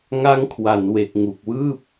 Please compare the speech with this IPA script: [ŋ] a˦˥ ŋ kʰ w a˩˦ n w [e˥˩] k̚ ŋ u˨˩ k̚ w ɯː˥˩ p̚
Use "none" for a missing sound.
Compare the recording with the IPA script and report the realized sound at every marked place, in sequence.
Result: ŋ, e˨˩

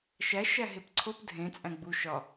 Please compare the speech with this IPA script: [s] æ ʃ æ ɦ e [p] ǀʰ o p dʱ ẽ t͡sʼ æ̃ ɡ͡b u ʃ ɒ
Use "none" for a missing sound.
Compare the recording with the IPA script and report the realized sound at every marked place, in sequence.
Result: ʃ, p

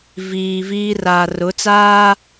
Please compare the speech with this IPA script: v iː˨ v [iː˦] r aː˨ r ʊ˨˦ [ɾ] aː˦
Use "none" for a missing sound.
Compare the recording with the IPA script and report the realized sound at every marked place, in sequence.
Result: iː˦, t͡s

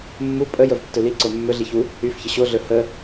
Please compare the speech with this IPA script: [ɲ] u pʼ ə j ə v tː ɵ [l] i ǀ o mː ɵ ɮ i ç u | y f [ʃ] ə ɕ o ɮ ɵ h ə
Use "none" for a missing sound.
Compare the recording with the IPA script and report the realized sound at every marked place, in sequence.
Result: mː, l, ç

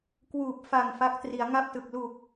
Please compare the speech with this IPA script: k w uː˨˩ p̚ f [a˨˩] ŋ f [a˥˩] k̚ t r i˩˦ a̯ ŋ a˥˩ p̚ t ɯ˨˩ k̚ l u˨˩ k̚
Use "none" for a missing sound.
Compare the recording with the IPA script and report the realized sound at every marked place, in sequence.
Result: a˨˩, a˦˥

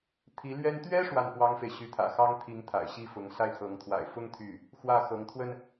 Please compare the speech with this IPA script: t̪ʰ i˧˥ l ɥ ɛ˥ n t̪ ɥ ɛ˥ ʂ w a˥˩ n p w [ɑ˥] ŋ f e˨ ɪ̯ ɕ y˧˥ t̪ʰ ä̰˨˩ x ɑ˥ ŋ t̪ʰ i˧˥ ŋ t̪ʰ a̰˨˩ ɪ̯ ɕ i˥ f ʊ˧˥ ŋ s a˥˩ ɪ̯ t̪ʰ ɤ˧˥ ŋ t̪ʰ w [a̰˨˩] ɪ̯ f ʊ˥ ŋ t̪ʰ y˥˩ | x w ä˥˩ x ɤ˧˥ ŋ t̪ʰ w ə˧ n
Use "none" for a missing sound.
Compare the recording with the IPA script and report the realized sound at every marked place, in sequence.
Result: ɑ˥, a̰˨˩

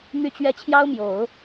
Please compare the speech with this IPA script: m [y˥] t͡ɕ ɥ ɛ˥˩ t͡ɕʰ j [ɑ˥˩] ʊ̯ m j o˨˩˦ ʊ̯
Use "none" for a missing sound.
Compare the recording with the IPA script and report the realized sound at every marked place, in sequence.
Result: y˥˧, ɑ˥

